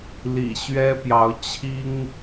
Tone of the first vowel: low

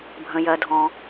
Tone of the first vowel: low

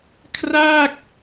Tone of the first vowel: falling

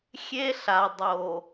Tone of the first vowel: high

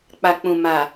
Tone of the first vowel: low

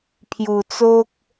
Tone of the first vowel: low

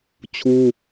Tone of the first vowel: high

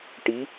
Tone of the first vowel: rising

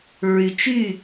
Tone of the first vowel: low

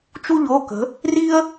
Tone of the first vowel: high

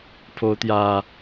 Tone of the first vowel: rising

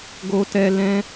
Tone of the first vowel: high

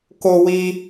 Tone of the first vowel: high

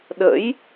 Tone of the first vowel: rising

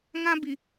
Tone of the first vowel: high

